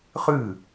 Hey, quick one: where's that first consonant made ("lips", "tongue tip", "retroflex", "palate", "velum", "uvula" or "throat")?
uvula